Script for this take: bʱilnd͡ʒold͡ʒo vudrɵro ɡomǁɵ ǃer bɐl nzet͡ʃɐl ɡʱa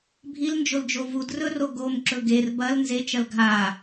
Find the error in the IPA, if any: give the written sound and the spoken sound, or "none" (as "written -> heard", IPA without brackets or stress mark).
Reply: ǃ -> ɡ